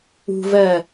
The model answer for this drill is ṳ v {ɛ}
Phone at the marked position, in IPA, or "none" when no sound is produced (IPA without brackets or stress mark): ɜ